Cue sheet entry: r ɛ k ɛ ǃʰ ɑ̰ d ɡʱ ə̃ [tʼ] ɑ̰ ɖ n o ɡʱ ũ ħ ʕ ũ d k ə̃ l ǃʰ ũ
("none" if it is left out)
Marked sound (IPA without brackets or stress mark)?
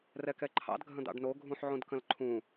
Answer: d̪